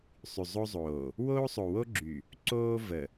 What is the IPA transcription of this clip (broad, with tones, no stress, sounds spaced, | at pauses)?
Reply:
sˤ y˨ zˤ o˦ zˤ oː˨ | w oː˦ sˤ o˨ w o˦ ɡ͡ǁ y˨ | ǀ oː˦ v ə˨